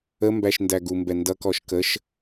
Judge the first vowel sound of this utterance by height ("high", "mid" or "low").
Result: mid